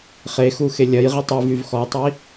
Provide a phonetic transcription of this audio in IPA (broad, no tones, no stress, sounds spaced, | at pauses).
χ e x u x e lʲ ɐ j ʁ i tˤ y v y v x ɔ tˤ i